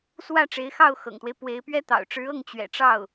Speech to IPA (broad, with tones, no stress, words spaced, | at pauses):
swä˥˩ʈ͡ʂe˧˥ɪ̯xɑ˥˩ʊ̯ xɤ̰˨˩ŋt̪we˦ɪ̯pwe˧˥ɪ̯pɥɛ˥ t̪ɑ̰˨˩ʊ̯ʈ͡ʂɻ̩˧˥ɤ˥˩ŋ t͡ɕɥɛ̰˨˩ʈ͡ʂɑ˥˩ʊ̯